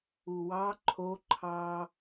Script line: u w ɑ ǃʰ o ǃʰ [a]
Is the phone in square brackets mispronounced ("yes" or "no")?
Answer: yes